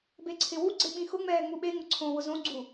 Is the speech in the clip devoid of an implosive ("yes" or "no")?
no